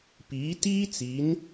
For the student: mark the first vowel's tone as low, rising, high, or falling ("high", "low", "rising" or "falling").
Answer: rising